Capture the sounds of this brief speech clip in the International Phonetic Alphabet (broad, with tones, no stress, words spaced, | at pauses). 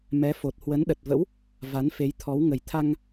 mɛ˨˦ fo˨˩t̚hwə˨˦nɗə˨˩t̚və̰˧˥w | va˨˦nfe˨˦jt̪ʰɔ˨˦w ŋə˨˩jt̪ʰa˧ŋ